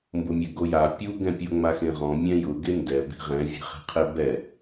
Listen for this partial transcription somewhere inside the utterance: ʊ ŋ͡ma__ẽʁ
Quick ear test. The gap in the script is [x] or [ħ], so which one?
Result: x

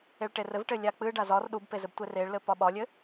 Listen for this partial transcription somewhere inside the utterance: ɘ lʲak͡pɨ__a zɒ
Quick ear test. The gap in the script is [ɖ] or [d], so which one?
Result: ɖ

